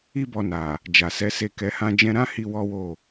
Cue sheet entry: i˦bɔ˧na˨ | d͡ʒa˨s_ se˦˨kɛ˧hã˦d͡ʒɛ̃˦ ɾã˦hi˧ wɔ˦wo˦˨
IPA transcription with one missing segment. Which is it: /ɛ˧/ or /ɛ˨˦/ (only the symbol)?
ɛ˨˦